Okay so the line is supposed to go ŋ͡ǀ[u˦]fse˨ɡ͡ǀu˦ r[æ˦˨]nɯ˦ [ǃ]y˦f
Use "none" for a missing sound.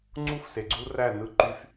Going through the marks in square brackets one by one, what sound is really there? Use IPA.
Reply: u˦, æ˦˨, ǃ

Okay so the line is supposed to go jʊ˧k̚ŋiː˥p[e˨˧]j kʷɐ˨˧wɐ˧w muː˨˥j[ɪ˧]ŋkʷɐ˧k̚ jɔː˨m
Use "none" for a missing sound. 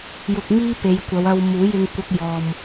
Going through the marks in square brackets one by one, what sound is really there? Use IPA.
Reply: e˨˧, ɪ˧

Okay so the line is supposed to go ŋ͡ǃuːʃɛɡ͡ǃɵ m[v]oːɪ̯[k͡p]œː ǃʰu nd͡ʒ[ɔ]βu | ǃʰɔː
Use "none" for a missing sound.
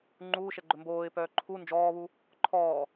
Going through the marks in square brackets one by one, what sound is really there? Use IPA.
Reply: b, p, ɔː

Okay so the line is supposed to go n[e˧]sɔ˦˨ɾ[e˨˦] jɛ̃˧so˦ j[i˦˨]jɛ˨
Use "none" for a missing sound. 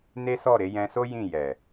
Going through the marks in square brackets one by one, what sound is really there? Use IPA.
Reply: e˦, e˨˦, ĩ˦˨

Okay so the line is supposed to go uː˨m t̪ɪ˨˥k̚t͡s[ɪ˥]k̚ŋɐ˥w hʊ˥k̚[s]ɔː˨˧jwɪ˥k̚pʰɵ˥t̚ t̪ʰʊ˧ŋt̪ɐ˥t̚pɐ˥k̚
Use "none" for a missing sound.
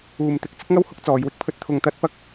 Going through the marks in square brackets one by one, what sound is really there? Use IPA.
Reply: ɪ˥, t͡s

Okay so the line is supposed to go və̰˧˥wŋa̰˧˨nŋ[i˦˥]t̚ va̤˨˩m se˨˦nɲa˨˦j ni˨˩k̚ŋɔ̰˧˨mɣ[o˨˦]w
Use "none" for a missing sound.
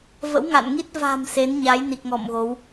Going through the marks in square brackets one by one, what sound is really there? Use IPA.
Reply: i˦˥, o˨˦

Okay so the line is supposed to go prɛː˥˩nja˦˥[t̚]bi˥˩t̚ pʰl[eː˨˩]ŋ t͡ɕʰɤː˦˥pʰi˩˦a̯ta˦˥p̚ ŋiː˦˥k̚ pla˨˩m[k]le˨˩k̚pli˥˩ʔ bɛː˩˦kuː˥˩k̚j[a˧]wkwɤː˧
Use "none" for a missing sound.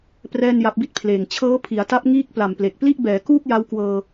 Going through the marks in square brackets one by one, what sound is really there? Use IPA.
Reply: p̚, eː˨˩, p, a˦˥

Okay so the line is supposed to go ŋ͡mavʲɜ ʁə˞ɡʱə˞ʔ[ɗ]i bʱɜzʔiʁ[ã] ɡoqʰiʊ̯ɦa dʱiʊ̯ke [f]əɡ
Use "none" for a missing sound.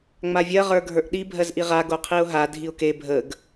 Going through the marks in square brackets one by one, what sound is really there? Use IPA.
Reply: ɗ, a, bʱ

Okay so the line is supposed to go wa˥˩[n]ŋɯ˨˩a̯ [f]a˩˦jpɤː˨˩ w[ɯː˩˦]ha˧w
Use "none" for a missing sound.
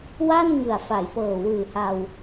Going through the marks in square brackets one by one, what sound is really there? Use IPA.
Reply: n, f, ɯː˨˩

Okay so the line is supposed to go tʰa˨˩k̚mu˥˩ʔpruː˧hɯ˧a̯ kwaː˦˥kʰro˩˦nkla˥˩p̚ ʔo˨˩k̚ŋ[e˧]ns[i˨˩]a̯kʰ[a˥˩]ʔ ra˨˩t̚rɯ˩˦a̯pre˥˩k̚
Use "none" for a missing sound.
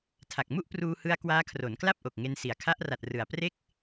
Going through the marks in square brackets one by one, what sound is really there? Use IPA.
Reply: e˧, i˩˦, a˦˥

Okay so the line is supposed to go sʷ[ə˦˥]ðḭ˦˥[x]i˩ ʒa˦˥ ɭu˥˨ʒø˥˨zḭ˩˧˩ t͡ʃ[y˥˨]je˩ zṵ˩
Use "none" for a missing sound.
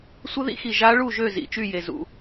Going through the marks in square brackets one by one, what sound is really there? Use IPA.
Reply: ə˦˥, x, y˥˨

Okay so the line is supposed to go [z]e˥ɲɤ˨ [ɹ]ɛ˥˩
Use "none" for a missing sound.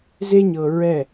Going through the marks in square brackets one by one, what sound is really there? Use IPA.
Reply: z, ɹ

